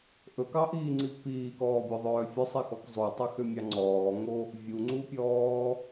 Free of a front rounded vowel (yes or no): no